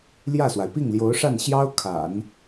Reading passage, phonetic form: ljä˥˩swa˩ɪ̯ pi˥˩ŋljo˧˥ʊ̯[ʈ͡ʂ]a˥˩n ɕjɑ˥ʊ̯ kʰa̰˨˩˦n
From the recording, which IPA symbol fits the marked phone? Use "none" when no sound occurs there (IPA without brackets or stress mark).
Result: ʂ